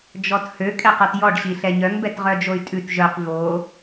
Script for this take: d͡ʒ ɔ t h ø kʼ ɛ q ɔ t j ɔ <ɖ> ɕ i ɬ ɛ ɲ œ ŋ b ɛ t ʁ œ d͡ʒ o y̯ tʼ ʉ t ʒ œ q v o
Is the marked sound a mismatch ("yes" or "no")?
no